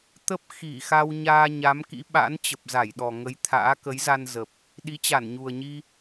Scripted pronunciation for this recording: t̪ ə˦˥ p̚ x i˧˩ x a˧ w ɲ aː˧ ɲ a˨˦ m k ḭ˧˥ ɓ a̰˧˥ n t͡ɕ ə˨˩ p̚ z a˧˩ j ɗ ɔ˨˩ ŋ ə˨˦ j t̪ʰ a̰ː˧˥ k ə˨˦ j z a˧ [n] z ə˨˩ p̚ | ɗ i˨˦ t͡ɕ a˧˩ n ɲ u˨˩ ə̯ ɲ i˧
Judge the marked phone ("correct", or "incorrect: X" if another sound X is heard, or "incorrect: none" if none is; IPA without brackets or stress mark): correct